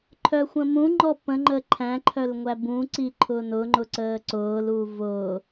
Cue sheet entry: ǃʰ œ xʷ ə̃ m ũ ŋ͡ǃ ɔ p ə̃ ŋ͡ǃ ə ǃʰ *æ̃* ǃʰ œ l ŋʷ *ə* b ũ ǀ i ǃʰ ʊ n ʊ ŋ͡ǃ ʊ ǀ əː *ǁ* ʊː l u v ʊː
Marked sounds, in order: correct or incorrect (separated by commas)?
correct, incorrect, incorrect